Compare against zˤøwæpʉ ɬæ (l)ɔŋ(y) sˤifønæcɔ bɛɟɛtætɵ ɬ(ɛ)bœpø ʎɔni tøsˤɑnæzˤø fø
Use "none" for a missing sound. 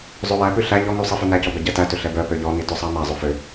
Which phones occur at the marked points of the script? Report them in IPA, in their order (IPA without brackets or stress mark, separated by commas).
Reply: ʎ, y, ɛ